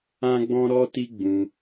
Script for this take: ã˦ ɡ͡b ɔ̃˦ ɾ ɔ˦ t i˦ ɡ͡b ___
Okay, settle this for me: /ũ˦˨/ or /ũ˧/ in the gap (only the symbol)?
ũ˧